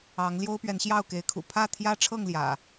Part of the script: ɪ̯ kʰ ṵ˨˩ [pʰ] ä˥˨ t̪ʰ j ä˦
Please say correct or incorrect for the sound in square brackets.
correct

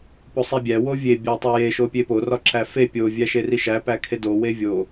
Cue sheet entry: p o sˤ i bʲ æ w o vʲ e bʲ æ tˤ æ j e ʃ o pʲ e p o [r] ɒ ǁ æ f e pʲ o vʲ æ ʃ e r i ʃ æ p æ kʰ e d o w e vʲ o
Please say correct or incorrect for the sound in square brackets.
correct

